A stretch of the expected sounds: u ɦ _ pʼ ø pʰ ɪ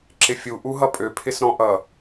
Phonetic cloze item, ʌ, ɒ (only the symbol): ʌ